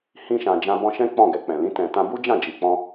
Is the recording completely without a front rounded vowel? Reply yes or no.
yes